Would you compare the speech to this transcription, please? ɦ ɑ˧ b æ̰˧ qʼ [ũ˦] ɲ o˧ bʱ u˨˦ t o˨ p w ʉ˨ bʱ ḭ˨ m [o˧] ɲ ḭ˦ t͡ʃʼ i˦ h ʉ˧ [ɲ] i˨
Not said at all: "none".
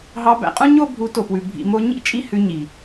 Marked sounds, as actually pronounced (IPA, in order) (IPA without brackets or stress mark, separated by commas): ũ˦, o˧, ɲ